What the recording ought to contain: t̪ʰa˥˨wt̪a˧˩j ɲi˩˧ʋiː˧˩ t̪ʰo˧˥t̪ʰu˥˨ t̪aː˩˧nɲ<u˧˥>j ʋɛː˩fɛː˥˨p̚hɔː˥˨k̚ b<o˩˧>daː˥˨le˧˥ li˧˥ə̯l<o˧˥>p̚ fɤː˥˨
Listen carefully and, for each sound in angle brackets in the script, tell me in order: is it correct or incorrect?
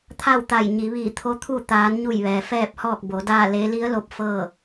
incorrect: u˧˩, correct, correct

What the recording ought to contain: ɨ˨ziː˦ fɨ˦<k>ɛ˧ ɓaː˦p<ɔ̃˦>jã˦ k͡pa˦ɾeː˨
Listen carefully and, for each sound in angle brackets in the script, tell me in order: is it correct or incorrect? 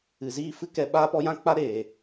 correct, incorrect: ɔ˦

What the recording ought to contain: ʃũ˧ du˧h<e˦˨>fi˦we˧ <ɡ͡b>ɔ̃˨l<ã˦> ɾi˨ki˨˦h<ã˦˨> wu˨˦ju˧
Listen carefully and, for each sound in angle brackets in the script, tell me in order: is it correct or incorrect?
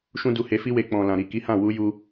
incorrect: e˧, incorrect: k͡p, incorrect: ã˨, correct

